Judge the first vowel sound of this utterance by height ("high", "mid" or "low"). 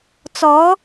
mid